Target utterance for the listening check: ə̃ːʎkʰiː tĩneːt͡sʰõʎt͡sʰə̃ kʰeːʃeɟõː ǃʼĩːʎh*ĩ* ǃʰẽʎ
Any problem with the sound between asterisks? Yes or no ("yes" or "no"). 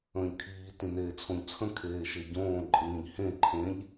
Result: yes